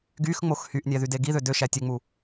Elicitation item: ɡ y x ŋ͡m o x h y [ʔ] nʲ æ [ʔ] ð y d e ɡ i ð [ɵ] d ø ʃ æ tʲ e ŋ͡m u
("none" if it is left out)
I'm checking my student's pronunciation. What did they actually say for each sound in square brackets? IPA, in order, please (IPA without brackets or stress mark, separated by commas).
ʔ, none, ø